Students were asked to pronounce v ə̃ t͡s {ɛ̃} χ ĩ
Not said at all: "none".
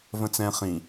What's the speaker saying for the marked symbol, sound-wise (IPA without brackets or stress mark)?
ɛ̃